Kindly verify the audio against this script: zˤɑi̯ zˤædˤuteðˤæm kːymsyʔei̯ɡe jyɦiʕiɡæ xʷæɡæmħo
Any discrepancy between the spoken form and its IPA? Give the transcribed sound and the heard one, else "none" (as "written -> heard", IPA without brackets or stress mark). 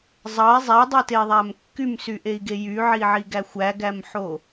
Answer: ɦ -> ʕ